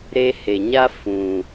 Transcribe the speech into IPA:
ɾ e˧ h e˨ ɲ a˦ f ũ˨

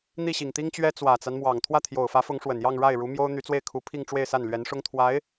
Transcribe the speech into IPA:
n̪ i˥˩ ɕ i˨˩ ŋ t̪ i˥ ŋ t͡ɕ ɥ ɛ˥ t͡s w ä˨˩ t͡s a˦ n m w ɑ˨˩ ŋ t̪ʰ w ä˥˩ t̪ʰ j o˨˩ ʊ̯ f ä˧˥ f ʊ˧˥ ŋ ʂ w ə˨˩ n j ɑ˥˧ ŋ ɻ a˥˩ ɪ̯ ɻ u˧˥ m j o˥ ʊ̯ n̪ y˧˥ t͡s w e˥˩ ɪ̯ kʰ u˧˥ pʰ i˥˧ ŋ ʈ͡ʂ w e˥˧ ɪ̯ s a˥˩ n l ɥ ɛ˧˥ n ʂ ʊ˥ ŋ t̪ʰ w a˧˥ ɪ̯

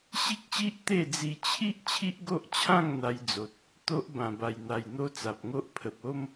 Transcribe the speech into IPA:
ɕ i˦ k̚ ɕ i˦ ʔ t̪ e˥˧ d͡z i˧ t͡ɕʰ i˦ ʔ t͡ɕʰ i˦ ʔ ɡ o˦ ʔ t͡ɕʰ ã˥˧ ŋ n̪ a˧ j d͡z o˨ t̚ | t̪ o˦ ʔ b ã˧ b a˧ j n̪ a˧ j n̪ o˦ t͡s a˨ p̚ ŋ o˦ ʔ pʰ ə˨ p̚ o˦ m

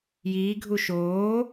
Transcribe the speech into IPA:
j iː ɡʱ u ʃ oː

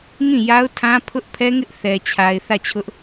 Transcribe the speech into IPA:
ŋ ĩ˦˨ j a˦ ʊ̯ tʰ ã˦ pʰ ʊ˦ ʔ pʰ ɛ˦ ŋ ɪ˦ ʔ θ ɛ˨ t͡ɕʰ a˨ ɪ̯ θ ä˦˨ t͡ɕʰ ʊ˦ ʔ

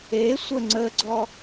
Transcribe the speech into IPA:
e sʷ ə ŋ͡ǀ ə ɡ͡ǀ ɔ

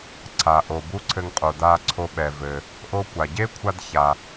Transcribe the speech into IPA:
ǀʰ a˩ ʔ o˩ b u˥ ǀʰ ɘ˧ ŋ qʼ o˩ d a˧ ǀʰ o˧ ɓ ɛ˩ v ɘ˩ | ʔ o˥ kʷ a˩ ɟ e˥ kʷʰ a˥ d ç a˩

